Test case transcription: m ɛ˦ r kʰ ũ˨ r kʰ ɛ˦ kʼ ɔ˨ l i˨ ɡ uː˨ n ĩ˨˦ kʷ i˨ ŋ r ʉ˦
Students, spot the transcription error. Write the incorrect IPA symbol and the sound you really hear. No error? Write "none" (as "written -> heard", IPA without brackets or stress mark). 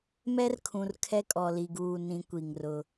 ʉ˦ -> ʊ˦